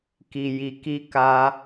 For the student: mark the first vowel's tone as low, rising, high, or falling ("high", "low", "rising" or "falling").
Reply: low